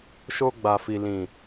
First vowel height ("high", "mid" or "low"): mid